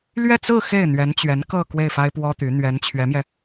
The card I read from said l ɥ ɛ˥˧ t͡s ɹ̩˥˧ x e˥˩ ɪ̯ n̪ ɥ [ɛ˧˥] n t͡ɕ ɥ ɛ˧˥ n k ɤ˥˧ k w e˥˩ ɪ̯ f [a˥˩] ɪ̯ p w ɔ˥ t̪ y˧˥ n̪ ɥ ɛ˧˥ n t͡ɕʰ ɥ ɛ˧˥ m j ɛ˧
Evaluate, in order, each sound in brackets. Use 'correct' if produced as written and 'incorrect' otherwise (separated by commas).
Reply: correct, incorrect